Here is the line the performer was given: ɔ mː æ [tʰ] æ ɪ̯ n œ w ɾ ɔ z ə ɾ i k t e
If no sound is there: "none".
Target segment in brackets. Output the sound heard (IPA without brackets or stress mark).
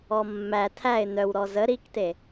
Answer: tʰ